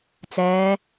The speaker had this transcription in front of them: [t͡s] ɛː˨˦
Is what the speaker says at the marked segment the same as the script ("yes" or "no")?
yes